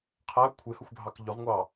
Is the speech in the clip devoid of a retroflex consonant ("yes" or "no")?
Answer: yes